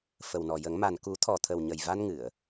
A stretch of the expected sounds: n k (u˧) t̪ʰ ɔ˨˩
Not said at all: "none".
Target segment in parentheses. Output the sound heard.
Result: u˨˩˦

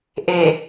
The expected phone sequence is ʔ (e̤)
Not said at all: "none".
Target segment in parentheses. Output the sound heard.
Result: e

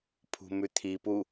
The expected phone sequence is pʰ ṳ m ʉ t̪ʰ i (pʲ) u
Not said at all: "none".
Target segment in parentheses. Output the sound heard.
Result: p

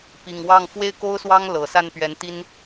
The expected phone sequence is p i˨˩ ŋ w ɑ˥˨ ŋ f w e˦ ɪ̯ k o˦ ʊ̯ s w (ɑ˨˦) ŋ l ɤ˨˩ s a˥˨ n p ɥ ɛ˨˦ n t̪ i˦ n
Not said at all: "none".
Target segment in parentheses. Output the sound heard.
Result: ɑ˦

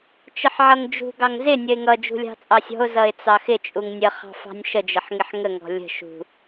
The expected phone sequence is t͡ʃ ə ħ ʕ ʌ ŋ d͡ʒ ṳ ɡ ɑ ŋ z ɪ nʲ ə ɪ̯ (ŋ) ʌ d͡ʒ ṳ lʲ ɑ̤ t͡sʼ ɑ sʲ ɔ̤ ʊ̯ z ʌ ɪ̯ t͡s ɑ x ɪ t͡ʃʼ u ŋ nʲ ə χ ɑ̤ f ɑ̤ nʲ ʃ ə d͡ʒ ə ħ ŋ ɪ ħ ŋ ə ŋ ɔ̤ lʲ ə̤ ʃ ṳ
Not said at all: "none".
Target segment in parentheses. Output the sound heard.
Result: ŋ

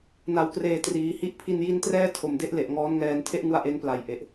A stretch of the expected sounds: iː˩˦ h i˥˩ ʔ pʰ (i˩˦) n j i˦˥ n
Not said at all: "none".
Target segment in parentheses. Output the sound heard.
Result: i˧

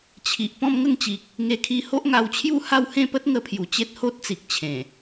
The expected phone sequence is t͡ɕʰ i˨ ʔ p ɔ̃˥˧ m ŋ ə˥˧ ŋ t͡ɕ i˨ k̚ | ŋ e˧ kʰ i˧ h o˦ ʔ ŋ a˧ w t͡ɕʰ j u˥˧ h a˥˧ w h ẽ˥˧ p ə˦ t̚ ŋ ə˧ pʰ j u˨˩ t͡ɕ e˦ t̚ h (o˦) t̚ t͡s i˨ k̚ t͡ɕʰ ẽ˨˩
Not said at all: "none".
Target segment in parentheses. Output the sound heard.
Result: o˦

